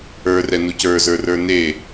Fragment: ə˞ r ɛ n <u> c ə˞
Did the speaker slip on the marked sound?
no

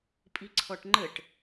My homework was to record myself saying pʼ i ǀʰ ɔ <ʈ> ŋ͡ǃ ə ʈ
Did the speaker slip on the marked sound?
no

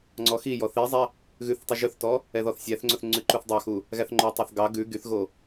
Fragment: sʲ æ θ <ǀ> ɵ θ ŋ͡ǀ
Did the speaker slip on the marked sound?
yes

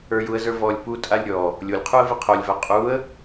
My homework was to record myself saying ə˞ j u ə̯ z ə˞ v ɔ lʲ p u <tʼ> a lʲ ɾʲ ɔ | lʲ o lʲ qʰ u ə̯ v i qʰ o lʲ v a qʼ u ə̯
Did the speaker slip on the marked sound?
no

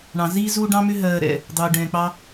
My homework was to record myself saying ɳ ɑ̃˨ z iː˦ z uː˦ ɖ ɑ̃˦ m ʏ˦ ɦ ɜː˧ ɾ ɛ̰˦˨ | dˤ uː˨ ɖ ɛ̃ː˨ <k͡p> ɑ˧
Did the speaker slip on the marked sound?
no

